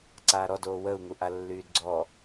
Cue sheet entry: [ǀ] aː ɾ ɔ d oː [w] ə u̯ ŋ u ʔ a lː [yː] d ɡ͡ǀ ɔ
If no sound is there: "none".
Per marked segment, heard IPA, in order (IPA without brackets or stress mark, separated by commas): ǀ, w, yː